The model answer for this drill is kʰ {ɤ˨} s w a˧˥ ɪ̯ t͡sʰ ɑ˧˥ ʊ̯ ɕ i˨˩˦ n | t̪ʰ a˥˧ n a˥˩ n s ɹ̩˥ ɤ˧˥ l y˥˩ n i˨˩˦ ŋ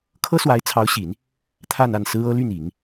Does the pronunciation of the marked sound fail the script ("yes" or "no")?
yes